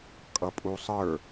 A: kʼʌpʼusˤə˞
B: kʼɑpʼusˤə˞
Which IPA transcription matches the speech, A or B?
A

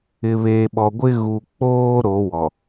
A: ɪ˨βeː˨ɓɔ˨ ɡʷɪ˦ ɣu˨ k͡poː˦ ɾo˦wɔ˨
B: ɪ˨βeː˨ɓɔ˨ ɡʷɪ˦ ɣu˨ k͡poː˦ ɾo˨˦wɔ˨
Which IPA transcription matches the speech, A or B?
B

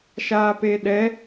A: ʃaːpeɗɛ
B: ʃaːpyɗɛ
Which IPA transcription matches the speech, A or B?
A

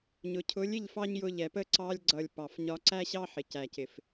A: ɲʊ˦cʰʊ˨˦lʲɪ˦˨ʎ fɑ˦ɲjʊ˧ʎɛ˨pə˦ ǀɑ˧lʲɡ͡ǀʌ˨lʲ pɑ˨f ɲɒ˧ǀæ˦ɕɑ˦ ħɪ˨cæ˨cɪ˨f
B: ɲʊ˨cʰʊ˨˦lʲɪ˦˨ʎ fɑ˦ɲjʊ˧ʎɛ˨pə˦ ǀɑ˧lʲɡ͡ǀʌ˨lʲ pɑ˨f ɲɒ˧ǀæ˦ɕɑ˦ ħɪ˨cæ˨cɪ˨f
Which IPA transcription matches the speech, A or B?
B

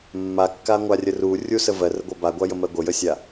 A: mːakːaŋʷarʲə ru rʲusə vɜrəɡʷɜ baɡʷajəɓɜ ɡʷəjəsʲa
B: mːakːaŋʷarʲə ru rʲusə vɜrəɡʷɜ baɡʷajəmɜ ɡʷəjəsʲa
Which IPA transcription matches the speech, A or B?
B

